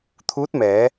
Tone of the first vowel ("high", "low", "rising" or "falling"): rising